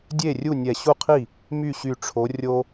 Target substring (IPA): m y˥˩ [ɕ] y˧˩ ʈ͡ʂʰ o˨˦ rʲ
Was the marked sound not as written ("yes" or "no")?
no